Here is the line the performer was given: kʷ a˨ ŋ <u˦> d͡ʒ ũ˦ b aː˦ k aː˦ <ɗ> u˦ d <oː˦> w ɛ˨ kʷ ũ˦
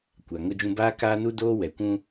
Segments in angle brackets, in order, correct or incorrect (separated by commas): incorrect, incorrect, correct